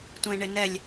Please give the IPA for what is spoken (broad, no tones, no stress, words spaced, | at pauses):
tʷẽɳɪnɛlʲ